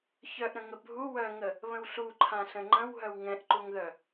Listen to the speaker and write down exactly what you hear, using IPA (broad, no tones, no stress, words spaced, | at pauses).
çœʔɾə̃ŋə bʱu wœŋə | βə̃wɬuǃʰãɬə̃ ŋ͡ǃə̃w ɦœwŋɛ̃ʔǃuŋðœ